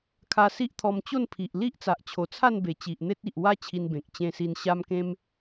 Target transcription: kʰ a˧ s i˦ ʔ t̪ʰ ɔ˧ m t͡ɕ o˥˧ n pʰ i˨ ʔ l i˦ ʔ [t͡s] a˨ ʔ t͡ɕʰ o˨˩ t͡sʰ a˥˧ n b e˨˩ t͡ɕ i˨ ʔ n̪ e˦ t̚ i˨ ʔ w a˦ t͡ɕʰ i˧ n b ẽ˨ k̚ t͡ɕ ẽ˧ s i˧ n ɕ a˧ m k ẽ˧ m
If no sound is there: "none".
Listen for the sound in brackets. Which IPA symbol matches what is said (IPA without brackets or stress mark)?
t͡s